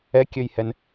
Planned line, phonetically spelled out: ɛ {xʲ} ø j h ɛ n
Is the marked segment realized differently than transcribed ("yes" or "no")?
yes